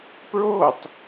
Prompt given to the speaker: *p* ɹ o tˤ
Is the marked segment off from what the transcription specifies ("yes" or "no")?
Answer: no